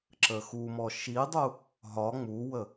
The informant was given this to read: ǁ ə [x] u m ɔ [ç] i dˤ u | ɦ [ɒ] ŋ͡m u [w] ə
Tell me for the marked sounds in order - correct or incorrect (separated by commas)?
correct, incorrect, correct, correct